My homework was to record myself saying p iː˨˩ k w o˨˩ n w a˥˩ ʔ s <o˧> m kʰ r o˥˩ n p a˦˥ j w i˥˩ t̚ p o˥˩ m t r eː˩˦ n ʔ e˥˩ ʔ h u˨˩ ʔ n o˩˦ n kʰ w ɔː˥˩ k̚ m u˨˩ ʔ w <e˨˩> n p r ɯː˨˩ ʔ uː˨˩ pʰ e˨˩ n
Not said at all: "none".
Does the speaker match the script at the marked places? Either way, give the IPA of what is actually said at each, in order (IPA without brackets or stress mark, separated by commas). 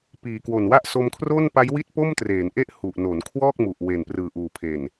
o˧, e˨˩